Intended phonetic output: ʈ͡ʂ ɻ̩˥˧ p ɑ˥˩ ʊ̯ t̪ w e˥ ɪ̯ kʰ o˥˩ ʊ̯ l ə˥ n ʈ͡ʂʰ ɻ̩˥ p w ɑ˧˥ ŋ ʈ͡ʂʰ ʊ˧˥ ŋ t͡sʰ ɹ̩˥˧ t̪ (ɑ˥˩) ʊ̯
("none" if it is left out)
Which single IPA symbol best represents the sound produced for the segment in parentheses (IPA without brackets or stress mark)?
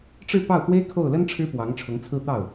ɑ˥˩